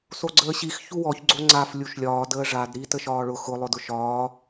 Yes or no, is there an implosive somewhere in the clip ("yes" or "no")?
no